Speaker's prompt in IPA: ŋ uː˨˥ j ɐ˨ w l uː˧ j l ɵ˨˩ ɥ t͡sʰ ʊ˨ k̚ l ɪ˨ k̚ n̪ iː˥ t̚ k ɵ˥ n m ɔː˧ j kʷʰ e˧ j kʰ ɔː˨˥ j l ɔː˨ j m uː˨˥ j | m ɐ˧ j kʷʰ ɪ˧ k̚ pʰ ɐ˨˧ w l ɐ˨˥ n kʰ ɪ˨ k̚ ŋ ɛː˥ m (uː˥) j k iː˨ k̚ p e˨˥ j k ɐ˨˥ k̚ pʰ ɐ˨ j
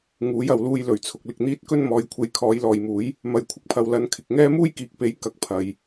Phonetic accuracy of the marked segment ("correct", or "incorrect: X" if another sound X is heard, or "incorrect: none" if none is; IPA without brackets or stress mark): correct